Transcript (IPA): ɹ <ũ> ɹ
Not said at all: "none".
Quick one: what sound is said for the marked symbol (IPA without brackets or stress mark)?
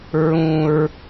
ũ